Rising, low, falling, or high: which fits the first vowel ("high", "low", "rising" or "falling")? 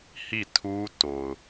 falling